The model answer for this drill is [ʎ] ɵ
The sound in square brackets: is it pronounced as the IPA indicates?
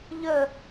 yes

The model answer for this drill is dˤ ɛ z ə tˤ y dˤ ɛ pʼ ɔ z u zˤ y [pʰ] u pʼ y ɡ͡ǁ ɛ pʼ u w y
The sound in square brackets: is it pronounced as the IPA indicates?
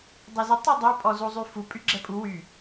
no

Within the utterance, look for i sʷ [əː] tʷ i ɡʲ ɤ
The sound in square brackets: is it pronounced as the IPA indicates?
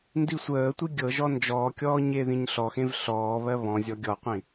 yes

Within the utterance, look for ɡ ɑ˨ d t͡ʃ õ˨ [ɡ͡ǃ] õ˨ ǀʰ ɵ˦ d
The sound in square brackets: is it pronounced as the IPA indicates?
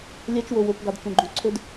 yes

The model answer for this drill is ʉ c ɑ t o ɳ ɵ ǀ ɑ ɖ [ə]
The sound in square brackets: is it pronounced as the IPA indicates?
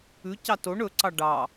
no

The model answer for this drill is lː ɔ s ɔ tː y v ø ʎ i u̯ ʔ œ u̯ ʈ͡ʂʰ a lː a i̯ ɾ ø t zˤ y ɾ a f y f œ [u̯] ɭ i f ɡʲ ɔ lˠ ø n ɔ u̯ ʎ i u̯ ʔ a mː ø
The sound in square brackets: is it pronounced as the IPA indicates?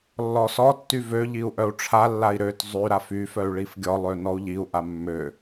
no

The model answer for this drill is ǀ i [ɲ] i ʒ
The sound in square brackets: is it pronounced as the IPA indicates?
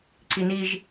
no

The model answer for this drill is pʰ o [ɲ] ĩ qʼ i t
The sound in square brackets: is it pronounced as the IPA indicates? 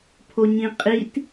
yes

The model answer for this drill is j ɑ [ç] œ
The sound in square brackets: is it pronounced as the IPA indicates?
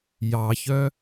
yes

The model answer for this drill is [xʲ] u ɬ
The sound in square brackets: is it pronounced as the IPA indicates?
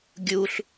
no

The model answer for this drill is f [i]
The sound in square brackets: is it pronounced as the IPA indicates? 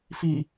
yes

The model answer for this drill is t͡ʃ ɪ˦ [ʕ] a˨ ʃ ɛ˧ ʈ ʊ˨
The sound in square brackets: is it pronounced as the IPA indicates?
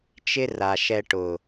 no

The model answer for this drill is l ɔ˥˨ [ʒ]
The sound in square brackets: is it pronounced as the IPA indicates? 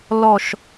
no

